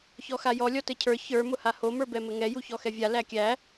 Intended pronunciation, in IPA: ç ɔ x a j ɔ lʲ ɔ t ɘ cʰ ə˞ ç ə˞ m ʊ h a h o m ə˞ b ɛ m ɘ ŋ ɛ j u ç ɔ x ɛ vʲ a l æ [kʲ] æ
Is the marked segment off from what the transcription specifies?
no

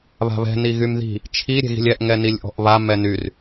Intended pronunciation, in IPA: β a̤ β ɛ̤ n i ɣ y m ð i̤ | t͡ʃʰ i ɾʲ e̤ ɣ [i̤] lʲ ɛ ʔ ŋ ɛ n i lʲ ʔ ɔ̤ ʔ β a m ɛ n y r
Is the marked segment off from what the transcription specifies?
no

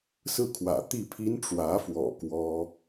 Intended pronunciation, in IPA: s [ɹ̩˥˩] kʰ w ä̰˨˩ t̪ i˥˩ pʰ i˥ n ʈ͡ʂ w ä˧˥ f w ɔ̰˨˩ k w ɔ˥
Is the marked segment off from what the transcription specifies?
no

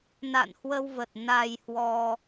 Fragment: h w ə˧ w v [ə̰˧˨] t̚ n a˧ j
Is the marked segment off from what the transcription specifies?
yes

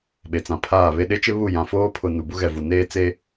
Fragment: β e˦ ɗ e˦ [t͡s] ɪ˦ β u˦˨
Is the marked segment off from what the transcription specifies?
yes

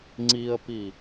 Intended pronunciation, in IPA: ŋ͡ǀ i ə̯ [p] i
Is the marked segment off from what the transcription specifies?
no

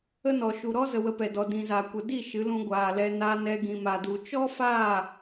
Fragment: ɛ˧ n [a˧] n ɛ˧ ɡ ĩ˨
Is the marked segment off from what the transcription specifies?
no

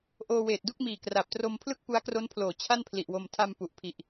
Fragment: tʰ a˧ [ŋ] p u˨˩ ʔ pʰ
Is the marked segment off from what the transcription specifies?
yes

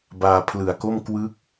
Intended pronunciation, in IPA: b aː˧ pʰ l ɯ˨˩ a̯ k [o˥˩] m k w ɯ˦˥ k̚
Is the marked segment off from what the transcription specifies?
no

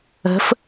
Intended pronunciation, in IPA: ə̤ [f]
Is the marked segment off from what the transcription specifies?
no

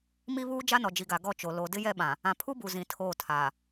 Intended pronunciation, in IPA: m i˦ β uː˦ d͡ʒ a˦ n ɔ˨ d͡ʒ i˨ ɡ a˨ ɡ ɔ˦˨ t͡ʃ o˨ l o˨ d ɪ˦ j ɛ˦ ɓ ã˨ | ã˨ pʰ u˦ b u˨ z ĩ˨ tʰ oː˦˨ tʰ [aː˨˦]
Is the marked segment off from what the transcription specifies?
yes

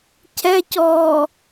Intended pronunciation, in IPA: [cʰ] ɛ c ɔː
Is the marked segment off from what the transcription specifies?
no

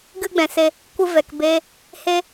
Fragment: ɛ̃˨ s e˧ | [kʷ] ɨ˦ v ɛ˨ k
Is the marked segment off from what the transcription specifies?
no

